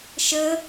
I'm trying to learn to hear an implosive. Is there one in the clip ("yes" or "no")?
no